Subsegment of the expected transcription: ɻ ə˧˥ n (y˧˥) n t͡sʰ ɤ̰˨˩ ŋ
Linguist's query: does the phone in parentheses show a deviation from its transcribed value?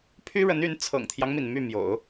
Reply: no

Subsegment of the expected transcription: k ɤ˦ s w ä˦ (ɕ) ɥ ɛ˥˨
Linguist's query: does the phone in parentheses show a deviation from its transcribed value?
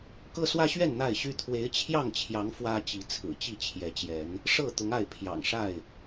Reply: no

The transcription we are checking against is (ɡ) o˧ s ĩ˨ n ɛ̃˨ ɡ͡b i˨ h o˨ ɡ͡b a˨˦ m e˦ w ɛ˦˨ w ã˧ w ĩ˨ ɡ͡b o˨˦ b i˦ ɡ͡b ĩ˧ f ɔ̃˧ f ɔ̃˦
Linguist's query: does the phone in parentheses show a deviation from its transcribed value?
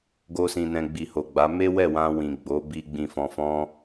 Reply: no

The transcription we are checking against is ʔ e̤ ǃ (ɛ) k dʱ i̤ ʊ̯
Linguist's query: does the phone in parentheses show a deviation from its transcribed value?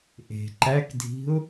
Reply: yes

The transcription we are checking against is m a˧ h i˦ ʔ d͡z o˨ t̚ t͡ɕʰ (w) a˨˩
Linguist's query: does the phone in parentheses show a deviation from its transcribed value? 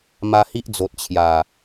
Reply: yes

